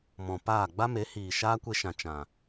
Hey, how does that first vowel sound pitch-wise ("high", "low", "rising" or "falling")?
low